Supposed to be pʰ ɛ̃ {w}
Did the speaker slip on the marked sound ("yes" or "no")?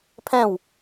no